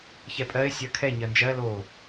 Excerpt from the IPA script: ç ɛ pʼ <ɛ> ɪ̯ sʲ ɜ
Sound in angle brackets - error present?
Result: yes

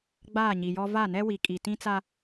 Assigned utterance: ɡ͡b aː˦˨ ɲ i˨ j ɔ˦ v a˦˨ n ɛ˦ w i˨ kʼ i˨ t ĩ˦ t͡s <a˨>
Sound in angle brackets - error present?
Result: yes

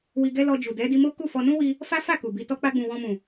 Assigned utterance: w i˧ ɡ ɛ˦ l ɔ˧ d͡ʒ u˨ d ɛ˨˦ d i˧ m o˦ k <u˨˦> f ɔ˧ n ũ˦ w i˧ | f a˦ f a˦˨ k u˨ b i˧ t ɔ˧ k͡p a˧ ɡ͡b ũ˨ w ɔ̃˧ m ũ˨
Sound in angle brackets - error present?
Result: yes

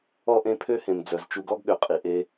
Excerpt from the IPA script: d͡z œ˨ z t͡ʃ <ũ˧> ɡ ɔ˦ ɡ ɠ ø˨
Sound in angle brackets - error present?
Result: yes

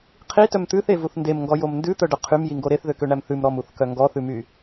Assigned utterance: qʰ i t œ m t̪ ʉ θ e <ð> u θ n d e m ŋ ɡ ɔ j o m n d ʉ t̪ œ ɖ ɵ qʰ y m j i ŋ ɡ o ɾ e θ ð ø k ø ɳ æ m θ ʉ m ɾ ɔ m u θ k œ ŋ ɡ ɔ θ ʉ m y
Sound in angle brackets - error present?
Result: yes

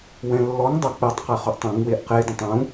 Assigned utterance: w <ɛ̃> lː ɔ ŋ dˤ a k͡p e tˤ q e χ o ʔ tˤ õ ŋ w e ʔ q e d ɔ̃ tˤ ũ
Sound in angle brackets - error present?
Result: no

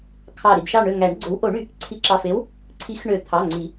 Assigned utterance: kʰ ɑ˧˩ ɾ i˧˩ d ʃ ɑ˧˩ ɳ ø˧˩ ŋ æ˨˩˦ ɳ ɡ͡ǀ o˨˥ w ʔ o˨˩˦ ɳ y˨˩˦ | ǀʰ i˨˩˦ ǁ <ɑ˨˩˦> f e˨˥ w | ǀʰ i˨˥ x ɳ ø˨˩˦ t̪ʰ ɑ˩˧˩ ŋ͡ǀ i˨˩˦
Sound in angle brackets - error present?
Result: yes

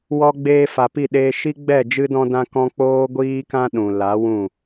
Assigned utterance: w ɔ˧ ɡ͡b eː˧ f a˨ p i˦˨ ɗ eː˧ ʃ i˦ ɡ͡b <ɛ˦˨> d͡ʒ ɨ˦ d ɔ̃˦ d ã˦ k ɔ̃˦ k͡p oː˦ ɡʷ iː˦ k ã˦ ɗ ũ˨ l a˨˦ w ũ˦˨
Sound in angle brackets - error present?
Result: no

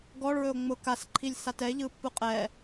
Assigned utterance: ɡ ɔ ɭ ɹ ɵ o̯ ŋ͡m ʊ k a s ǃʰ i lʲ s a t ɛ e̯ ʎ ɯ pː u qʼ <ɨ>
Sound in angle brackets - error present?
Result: yes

